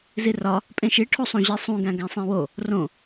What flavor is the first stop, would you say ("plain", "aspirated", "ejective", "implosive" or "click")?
ejective